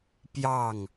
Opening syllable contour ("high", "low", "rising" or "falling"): falling